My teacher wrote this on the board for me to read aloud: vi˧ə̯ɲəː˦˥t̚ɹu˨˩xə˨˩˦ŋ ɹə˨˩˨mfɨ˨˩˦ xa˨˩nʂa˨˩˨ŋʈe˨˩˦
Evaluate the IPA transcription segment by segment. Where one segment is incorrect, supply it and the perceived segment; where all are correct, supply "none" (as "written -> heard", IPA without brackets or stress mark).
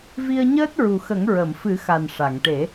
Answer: none